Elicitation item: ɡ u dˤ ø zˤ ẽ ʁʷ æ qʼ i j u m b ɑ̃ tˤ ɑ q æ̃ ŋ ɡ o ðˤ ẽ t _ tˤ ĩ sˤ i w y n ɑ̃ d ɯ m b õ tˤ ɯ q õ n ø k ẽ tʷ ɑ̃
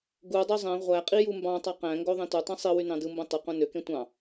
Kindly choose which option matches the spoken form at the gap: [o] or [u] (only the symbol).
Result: u